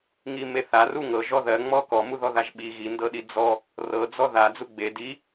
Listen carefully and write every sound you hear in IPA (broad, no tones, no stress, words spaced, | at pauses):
ŋimeθaru ŋɤʒɔ ðɜŋ͡mɔ kɔmuðɔðaʒ ɓi ɣindɤɗi d͡zɔ | rɤd͡zɔ ða d͡zuɡ͡be di